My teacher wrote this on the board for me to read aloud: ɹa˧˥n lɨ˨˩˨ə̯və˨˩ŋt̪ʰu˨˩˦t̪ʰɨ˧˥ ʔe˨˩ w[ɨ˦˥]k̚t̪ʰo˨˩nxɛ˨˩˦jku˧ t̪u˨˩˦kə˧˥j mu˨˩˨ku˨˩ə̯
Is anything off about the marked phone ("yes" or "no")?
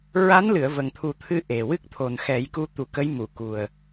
no